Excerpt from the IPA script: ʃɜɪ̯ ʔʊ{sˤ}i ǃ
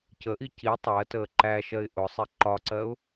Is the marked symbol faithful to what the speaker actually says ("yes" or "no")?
yes